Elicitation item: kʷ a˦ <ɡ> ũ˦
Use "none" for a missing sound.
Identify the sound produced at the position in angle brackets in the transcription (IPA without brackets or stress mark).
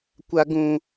ɡ